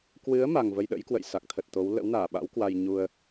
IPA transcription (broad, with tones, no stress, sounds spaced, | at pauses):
k w ɨ˨˦ ə̯ m a˨˩ ŋ v ə˧ j ɗ ə̰˧˥ j k w ə̰˧˨ j s a˨˩ k̚ t̪ʰ ə˨˩ t̚ t̪ o˨˦ w l ə̰˧˥ w n aː˧˩ ɓ a̰˧˥ w k w a˧ j ɲ u˧ ə̯